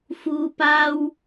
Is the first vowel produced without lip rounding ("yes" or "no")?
no